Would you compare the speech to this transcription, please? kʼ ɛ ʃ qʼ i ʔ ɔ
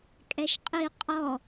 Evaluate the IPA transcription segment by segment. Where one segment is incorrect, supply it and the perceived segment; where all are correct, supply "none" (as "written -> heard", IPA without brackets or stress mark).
ʔ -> qʼ